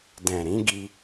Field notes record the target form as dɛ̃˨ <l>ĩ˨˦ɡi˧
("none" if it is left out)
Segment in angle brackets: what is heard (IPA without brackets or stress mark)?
ɾ